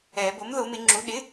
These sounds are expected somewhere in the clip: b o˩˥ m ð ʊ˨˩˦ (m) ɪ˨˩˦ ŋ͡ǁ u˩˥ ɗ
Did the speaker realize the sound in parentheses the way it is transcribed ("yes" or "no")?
yes